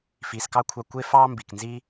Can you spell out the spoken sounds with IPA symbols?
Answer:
fiː˨skɑ˦kʷʰɑ˧ kʷe˦fɑː˦ mbi˨knzi˦

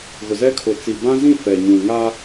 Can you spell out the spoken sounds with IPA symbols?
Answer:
ɣʊ˨zɛ˦kʰʊ˨ t͡si˨bã˦zĩ˦˨ fɛ˨ɲũ˨ ŋa˦

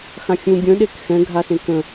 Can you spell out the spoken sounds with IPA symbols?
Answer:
xãxʲũ ɡʲə̃ɗek xɛ̃ɡʱasẽ kə̃

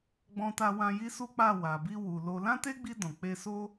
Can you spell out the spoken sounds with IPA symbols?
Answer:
ɡ͡bɔ̃˧ta˧wã˧ ji˦su˦k͡pa˦˨ wa˨bi˧wu˨ lo˧ lã˦te˦ɡ͡bi˧ dɔ̃˨k͡pe˧so˦

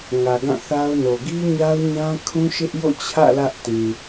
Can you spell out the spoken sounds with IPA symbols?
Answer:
ŋä˨ɡã˦˨θa˦ʊ̯no˨ ɡi˦ɲa˦ʊ̯ɲã˦kʰũ˦ ʃɪ˦ʔjo̰˦˨t͡ɕʰä̰˦˨ lä˦ʔtĩ˨

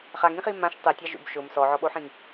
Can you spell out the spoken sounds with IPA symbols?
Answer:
χaŋĩχi mãʃ tˤetʲa ʒṵb ʃʊm sɔʕɔɓoħĩŋ

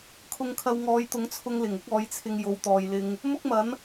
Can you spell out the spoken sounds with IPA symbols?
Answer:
kʰʊ˧ŋkʰɐ˧w ŋɔː˨˧jt̪ʊ˨˥ŋt͡sʰʊ˧ŋ lɪ˨˩ŋ ʊ˥k̚ɔː˨˥jt͡sʰɪ˧ŋ jo˨˧wt̪ɔː˨jlɪ˧ŋ | mʊ˥k̚mɐ˨˥n

